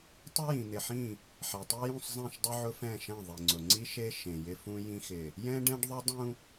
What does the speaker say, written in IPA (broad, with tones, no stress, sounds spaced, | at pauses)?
tˤ ʊ˦ j ĩ˨ n̪ ɪ˨ ħ ĩ˦˨ | ħ ɛ˨ tˤ i˦ j ũ˦˨ sˤ zˤ ɛ̃˦˨ ʃ dˤ ʊ˦ ʕ ʊ˦ f ɛ̃˦˨ ʃ ɛ̃˦˨ ðˤ i˨ ŋ͡ǀ ʊ˨ ŋ͡ǀ i˦ ʃ e˦ ʃ ẽ˨ j ɪ˦ f ũ˦ j ĩ˦ x ɪ˨ | j ɛ̃˦ ɖ ɛ̃˦ ɖ ðˤ ʊ˦ dˤ ũ˦